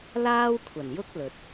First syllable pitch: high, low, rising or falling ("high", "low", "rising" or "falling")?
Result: high